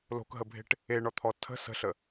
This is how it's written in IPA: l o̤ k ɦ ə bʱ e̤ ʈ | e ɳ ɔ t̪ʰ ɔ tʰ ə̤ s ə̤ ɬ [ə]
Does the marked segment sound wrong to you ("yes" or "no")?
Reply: no